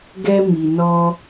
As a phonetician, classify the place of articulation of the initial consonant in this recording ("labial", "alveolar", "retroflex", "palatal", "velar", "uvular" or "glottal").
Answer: velar